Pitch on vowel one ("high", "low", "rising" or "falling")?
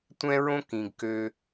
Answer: high